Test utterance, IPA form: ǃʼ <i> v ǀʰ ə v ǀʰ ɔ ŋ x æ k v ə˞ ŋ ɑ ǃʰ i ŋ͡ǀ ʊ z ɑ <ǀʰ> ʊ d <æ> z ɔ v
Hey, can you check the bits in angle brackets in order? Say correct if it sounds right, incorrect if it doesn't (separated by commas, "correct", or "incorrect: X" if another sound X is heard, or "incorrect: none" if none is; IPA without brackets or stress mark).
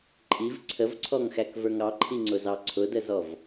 correct, correct, incorrect: ə